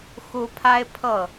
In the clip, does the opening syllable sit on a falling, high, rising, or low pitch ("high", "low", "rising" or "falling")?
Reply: high